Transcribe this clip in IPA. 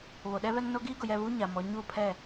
β o˨ ɗ ɛ˦ β ɛ˦ ŋ n o˦ ɡ iː˦ ɡ ʊ˨ j ɛ˦˨ β uː˦ ɲ a˨ m ɔ˨˦ ɲ uː˦˨ pʰ ɛ˦˨

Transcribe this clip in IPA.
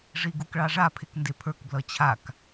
ʐ i ɡ u k ɭ ɑ ʐ a pʰ e k n d e pʰ ə˞ k b l ʌ t͡ɕʰ a k

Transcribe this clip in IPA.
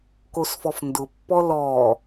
k o s f ɔ f n d ʊ pː ɔ l ɔː

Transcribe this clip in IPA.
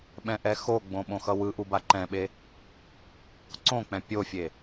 ɓ ɛ̃ ʔ ɛ x o ɡ͡b õ ɓ õ x ʌ w ɯ ʔ u b a ǃ ɛ̃ ɓ e | ǀ õ k͡p ɛ̃ pʲ o fʲ e

